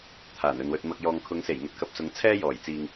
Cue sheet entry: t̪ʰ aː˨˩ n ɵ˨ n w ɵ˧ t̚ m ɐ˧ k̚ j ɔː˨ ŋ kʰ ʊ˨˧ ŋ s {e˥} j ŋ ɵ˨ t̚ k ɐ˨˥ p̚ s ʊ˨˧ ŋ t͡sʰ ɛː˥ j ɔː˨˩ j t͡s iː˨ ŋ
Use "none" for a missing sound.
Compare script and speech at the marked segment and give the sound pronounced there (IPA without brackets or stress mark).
e˨˩